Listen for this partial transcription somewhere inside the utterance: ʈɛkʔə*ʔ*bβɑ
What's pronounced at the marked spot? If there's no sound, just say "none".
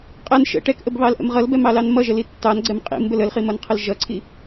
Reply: none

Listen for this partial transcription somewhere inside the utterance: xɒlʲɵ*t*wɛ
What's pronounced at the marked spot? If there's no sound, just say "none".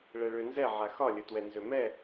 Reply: t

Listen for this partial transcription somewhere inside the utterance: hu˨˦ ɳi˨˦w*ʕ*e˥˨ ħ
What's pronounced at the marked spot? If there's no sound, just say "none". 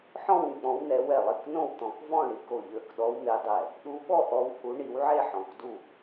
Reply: ʕ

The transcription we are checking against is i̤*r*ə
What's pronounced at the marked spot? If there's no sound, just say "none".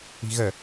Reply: ɣ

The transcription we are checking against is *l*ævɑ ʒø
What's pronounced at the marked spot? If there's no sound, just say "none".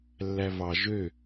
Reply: lː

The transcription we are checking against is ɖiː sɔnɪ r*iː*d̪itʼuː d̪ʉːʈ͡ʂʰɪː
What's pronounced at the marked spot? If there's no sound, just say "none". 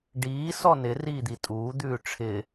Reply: iː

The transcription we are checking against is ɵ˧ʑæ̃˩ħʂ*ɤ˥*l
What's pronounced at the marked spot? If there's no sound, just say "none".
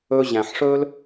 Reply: ɵ˥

